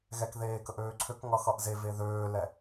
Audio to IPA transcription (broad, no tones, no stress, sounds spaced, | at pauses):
ɣ ɛ k ð eː k ə ʔ øː ǀʰ ø k ŋ ʌ x ʌ ʔ z e v e ð øː l ɛ